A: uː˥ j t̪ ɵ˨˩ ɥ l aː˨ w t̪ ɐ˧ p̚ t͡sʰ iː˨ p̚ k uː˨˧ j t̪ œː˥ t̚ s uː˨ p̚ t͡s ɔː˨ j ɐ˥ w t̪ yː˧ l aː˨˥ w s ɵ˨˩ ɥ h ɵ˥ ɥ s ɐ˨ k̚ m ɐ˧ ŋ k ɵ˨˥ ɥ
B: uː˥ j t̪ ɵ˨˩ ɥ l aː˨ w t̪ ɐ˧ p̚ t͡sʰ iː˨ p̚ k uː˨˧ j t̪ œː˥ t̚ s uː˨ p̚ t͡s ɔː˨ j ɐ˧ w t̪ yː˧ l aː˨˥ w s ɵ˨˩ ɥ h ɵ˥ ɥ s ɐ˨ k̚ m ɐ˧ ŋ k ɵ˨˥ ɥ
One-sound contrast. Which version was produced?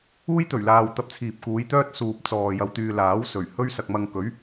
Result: B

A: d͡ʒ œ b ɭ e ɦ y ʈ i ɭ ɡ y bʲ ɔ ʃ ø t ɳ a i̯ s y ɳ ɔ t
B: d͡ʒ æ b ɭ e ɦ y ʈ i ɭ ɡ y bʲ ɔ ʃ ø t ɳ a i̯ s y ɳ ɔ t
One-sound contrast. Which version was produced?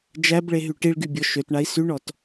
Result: B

